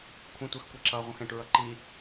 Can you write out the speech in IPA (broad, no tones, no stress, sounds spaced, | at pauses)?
kʷʰ ə̃ tʷ ə x kʷ i ǁ ʌ ʁʷ ə̃ x ɛ̃ ʈ ɹ ʌ ǃ i